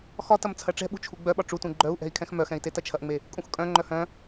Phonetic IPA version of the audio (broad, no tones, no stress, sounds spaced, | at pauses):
x ɒ t ɐ m t͡sʰ ɐ ʈ͡ʂ ɛ̤ ɓ ṳ t͡ʃʰ u ɡ͡b œ ɓ ɒ ʈ͡ʂ u t ũ ɡ͡ǃ œ u̯ ʔ ɛ̤ i̯ kʰ ɛ̃ x m œ x ɛ̃ i̯ t e t ɐ t͡ʃʰ ɐ ʔ ŋ͡m e | kʼ ũ x kʼ œ̃ ŋ͡ǃ œ h œ̃